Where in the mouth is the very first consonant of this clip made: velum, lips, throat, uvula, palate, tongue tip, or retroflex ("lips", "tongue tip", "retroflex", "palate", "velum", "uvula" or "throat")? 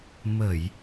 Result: lips